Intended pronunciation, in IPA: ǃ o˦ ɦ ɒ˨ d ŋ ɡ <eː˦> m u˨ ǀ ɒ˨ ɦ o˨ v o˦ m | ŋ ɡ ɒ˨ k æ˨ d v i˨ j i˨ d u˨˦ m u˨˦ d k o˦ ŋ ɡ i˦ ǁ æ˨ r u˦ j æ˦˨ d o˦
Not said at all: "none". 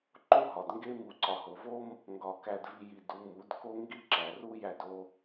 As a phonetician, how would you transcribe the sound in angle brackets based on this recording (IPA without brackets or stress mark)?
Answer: e˦